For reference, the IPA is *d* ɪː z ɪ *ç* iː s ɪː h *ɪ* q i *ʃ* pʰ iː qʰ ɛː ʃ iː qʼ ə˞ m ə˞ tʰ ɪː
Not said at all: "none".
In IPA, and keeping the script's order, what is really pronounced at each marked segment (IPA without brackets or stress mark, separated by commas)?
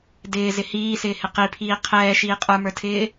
d, h, ɪ, none